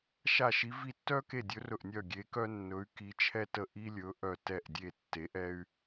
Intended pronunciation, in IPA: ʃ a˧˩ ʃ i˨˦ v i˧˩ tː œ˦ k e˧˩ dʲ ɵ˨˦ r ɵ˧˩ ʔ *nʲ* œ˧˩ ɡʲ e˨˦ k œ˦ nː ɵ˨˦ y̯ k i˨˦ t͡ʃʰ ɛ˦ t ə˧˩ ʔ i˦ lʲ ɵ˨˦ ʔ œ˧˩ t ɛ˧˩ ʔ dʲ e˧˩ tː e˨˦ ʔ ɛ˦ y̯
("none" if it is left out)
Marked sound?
nʲ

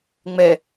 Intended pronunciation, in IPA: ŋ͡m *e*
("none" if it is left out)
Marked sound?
ɛ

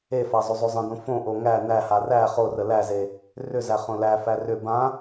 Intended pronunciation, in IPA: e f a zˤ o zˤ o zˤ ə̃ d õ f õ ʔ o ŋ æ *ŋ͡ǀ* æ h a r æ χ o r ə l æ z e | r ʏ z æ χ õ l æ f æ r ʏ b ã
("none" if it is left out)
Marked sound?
n̪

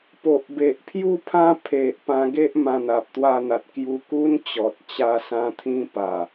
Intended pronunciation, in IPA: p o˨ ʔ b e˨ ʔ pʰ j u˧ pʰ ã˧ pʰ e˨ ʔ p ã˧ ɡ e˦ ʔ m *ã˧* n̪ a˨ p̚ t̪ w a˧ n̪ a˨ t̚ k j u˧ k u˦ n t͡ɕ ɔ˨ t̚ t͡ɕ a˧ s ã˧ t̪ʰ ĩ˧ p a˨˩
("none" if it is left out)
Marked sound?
ã˧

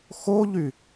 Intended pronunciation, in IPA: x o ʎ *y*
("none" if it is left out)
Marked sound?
y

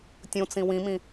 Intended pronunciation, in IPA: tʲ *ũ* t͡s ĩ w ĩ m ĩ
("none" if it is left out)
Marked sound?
ũ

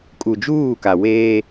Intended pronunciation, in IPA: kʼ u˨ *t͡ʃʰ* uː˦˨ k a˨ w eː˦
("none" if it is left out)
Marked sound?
d͡ʒ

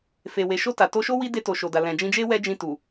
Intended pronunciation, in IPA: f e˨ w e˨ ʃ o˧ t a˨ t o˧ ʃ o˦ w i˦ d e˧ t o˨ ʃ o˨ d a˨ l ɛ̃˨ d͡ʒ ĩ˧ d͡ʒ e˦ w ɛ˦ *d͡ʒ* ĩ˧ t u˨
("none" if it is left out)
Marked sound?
d͡ʒ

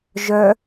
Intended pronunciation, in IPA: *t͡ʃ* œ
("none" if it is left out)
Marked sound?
ʒ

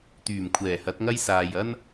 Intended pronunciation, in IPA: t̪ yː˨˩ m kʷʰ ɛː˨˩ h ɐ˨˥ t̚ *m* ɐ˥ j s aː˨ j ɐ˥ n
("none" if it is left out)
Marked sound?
ŋ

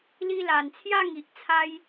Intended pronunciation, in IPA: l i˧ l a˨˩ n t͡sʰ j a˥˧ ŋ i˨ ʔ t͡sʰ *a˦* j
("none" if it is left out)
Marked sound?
a˧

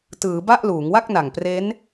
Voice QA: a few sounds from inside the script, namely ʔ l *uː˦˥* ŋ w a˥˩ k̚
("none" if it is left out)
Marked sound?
uː˩˦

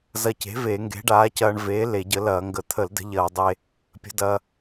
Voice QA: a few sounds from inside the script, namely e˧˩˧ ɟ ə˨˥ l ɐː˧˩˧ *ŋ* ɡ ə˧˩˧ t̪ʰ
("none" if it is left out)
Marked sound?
ŋ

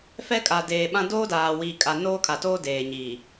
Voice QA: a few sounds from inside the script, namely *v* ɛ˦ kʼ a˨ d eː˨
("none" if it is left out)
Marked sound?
f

